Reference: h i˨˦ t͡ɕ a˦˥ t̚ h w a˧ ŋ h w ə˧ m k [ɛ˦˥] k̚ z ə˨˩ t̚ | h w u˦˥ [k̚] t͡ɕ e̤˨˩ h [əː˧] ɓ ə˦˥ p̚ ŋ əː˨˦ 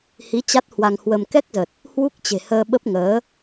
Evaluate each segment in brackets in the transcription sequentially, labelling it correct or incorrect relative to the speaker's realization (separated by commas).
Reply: correct, correct, correct